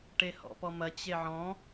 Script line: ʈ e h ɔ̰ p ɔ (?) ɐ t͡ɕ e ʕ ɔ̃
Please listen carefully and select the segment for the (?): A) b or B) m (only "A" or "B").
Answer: B